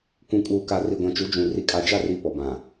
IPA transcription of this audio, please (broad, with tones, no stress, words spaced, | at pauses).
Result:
kʷũ˨kʼuː˨ka˨ ri˨ɡʷã˨t͡ʃu˨˦ d͡ʒũ˨ ri˨kʼa˨d͡ʒa˦˨ri˨ pɔ˨bã˨